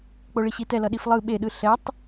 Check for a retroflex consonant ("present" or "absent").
present